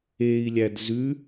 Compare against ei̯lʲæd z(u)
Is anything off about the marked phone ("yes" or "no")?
yes